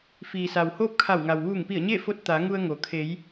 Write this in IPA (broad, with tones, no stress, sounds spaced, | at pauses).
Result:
f iː˩ s a˩ w h oː˥˨ p̚ kʰ a˧˩ w ŋ a˩ w ʋ uː˧˩ ŋ p i˧˩ ə̯ ɲ e˥˨ f o˧ t̚ t̪ a˩˧ ŋ u˧ ə̯ ŋ o˩ kʰ e˩˧ j